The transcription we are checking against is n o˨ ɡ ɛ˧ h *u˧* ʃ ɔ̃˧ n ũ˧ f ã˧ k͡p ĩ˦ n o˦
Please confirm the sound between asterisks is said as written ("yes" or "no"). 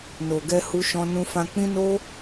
yes